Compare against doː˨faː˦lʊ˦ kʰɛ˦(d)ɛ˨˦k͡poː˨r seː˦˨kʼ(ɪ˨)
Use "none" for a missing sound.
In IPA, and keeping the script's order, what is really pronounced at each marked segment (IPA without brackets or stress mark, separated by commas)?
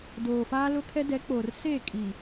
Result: d, i˨